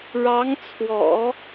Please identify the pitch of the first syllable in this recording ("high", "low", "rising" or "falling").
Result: rising